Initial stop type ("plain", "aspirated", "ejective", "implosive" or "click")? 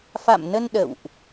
implosive